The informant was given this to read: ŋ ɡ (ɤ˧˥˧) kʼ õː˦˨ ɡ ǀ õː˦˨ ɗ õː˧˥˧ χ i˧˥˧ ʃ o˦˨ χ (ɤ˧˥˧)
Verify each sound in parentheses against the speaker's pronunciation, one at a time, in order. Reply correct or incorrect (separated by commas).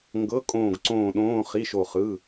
correct, incorrect